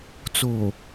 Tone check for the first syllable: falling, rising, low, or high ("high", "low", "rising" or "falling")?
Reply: low